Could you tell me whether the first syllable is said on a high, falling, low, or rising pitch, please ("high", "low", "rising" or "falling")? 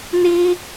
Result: high